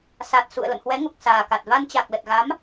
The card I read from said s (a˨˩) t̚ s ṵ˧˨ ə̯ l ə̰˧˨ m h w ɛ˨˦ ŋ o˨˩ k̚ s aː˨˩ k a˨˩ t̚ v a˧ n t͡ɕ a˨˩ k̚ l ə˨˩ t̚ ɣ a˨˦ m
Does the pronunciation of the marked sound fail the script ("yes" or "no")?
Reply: no